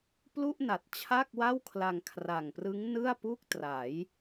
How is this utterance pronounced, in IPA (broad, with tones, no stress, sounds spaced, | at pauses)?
p l u˥˩ ʔ n a˨˩ t̚ t͡ɕʰ a˥˩ k̚ w a˥˩ w kʰ l a˧ ŋ kʰ r a˨˩ ŋ p r ɯ˦˥ ŋ n ɯ˥˩ a̯ p u˥˩ k̚ t r a˩˦ j